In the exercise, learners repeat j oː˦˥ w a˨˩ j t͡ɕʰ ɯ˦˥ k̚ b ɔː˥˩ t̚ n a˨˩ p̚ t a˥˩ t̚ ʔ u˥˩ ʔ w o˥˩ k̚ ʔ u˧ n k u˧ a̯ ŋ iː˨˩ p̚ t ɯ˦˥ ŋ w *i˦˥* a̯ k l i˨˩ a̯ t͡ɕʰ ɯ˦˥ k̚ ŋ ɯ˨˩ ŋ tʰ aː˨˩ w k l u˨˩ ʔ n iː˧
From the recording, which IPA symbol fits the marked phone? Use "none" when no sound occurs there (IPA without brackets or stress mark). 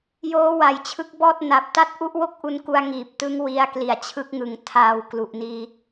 i˧